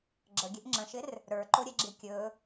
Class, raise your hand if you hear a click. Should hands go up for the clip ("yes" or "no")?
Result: yes